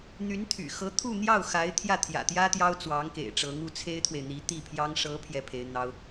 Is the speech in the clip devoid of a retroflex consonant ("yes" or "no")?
no